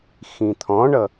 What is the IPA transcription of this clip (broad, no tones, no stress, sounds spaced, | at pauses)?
x ĩ t̪ʰ ɔ̃ ɳ ʌ